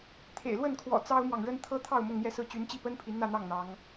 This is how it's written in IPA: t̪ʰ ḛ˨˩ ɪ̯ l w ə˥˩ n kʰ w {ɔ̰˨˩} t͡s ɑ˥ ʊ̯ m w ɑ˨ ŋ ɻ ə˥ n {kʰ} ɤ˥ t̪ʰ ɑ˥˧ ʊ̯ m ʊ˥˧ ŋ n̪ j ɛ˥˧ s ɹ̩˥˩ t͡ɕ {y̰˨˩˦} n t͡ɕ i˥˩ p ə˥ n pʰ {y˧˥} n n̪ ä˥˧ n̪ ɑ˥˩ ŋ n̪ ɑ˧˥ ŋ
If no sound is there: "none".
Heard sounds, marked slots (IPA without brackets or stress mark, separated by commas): ɔ̰˨˩, t̪ʰ, y˧˥, i˧˥